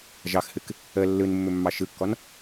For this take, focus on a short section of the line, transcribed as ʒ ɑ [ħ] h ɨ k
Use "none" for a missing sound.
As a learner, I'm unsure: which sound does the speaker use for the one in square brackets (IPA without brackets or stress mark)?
x